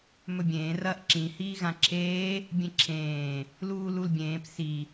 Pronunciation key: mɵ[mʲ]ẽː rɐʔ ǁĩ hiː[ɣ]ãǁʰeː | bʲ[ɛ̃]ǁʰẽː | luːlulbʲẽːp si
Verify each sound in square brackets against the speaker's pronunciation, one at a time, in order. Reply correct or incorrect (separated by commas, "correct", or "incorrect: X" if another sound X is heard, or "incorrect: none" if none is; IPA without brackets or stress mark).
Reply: incorrect: bʲ, correct, incorrect: ẽ